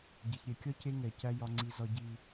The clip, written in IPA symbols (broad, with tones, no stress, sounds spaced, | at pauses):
ɟ ɛ˨ ç ɾʲ ɛ˨ kʲ ɒ˦ c e˦ ŋ ɛ˨ c æ˦ j ɒ˦ ŋ͡ǀ i˦ z ɒ˦ ɟ i˦